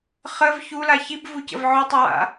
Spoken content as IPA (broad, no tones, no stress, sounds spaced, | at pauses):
χ ə v ç u l a ç i b v u c ə̰ v ʕ ʊ tˤ ə w a̰